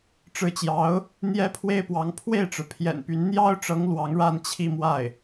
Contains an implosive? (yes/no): no